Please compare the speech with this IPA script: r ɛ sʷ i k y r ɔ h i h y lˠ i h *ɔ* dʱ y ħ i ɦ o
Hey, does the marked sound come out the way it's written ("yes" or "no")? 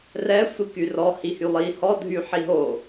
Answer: yes